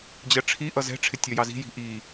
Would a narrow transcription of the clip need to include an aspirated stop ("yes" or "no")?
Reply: yes